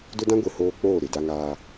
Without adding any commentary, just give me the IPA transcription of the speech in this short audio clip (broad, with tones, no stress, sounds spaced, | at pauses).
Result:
d ʊ˦ d ã˦ ɡʷ i˨ h oː˦ k͡p oː˦˨ ɾ ɪ˨ d a˦ ŋ aː˦